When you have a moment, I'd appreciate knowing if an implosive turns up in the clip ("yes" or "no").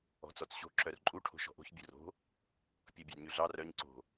no